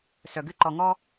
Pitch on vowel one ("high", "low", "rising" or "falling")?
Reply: low